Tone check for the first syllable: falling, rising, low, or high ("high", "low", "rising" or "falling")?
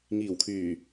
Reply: low